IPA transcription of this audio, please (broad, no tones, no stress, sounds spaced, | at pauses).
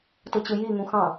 t ɯ t͡ɕ ɯ j i ŋ ũ x ɑ̃